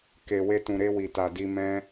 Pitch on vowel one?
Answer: low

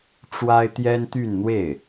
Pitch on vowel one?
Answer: high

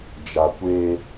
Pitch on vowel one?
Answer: low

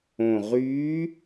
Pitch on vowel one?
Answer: low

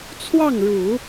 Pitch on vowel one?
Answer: falling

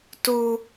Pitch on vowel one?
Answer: high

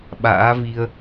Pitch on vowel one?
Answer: rising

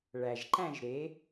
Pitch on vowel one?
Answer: low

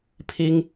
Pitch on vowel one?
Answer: high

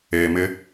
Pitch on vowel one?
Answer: low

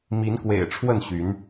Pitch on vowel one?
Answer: rising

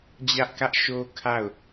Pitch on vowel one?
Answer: high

